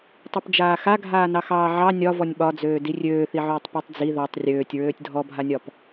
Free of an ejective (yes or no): yes